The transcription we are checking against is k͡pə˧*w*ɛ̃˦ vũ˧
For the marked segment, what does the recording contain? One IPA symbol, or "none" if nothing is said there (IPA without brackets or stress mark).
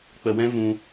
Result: w